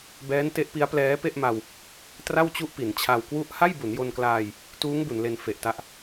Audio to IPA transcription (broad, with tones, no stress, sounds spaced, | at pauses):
b ɛː˦˥ n t e˦˥ ʔ p i˦˥ a̯ p l ɛː˦˥ p e˥˩ ʔ m a˧ w | t r a˥˩ w t͡ɕ u˥˩ ʔ p i˩˦ n t͡ɕʰ a˧ w k w u˥˩ ʔ h a˥˩ j b u˩˦ n j o˧ n k l aː˧ j | t uː˦˥ ŋ b u˩˦ n l e˧ n f e˨˩ ʔ t a˦˥ ʔ